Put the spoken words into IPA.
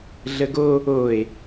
ɮ ə ɡ o | o e̯

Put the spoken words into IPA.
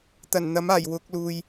t̪ ɐ˨˩ n n̪ ɐ˨˥ m aː˨˩ j w ʊ˨˥ k̚ l uː˨ j

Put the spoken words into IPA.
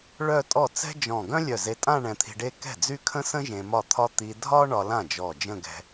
ɭ œ˥˧ tʼ ɔ˥˩ t͡s ɛ̤˥ d͡ʒ ɔ̃˧˩ ɡ œ̃˥ lʲ œ˧˩ z e˧ tʼ ã˥˧ ɳ ɛ̃˧ t̪ʰ i̤˧ ɖ e˥˧ k ɛ̤˥˩ d͡z y˥˧ kʰ ə̃˥ s ə̃˥ ʒ ẽ˧ m ɒ˥˩ t̪ʰ ɒ˥ t̪ i˧ dʱ ɒ˥ ɳ ɒ˧ l ã˥˩ d͡ʒ ɔ˧˩ d͡ʒ ə̃˥˧ ɡ ɛ̤˧

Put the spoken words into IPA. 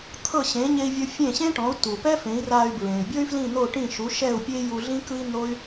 t̪ʰ ɤ˥˩ ɕ ẽ˩˥ ɲ e˧ i̯ vʲ o˧ fʲ ẽ˥˩ ɕ ẽ˥ ʈ ɔ̃˩˥ u̯ t u˩ p ɛ˥ f ẽ˩˥ i̯ r aː˧ y̯ b ɹ ẽ˩ y̯ bʲ ɤ˥ y̯ f l ĩ˥˩ n̪ o˥˩ ʈ ĩ˥˩ ʃ u˩˥ ʃ ɛ˥˩ u̯ pʲ e˥ j u˧ ɮ ĩ˥ k ɯ˥ i̯ n̪ o˥ y̯

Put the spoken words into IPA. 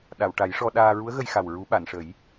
ɗ a˨˩˨ w ʈ a˨˩˦ j ʂ ɔ˧ ɗ aː˧ ɹ u˧˥ ə̯ ɣ ə˧ j x a˨˩ w ɹ u˨˩˦ ɓ a˨˩˨ n ʂ ə˨˩˦ j

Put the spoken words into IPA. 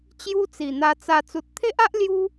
t͡ɕ j u˦ t͡s i˨˩ n̪ a˧ t͡s a˧ t͡s u˨ t̚ t̪ʰ e˦ ʔ a˦ ʔ l j u˦

